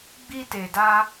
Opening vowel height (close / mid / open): close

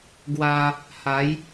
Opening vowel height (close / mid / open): open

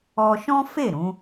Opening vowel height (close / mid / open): mid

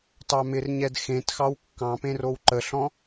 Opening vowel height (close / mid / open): open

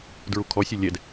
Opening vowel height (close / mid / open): close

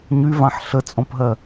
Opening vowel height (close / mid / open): close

